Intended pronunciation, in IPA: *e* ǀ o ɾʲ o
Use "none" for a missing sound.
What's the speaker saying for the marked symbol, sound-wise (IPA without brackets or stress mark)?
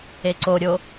e